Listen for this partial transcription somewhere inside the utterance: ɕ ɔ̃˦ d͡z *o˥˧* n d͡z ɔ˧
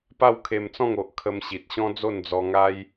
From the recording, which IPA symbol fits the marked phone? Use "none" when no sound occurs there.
o˥˧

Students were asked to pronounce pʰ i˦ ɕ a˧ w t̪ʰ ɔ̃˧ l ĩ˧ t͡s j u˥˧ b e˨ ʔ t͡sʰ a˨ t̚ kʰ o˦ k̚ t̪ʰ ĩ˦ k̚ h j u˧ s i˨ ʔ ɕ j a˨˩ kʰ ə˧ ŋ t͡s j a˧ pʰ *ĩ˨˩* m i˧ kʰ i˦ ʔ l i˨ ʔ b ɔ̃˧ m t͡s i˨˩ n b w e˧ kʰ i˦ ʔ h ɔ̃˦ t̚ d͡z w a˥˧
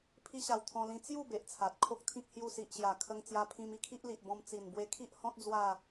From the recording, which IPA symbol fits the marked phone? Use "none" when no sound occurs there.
ĩ˧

